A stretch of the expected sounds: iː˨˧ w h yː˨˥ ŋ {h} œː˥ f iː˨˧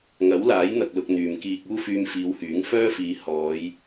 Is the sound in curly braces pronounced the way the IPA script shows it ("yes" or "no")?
no